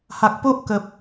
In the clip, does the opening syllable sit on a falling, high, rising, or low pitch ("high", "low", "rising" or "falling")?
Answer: low